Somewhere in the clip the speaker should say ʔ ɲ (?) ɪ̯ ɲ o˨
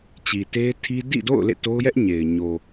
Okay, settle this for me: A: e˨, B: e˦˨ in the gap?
A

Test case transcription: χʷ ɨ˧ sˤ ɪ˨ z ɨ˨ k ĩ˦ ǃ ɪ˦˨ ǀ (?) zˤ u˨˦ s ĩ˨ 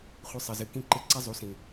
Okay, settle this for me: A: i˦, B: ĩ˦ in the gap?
A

